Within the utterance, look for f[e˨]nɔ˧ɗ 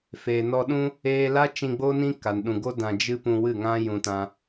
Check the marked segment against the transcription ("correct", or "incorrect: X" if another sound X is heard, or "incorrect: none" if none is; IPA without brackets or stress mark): correct